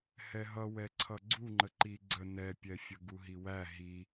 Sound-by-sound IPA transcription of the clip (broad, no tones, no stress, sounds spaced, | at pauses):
h ɛ ɦ ʌ w ɛ ǀʰ ʌ ɡ͡ǀ u ŋ͡ǃ ə ǃ i ɡ͡ǀ ə n ɛ pʲ ɛ fʲ ə ɡ u ɦ i w æ ɦ i